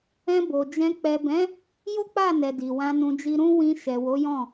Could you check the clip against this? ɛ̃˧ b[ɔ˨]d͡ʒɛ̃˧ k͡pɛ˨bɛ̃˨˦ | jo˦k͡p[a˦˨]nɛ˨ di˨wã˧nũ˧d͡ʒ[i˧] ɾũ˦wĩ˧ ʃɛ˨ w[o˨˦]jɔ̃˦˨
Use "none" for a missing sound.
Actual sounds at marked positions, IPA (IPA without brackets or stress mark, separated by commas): o˨, a˦˨, i˦, o˨˦